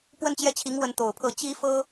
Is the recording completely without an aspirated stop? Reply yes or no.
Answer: no